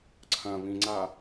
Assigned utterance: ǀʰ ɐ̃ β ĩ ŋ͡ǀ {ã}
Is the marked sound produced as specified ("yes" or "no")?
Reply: no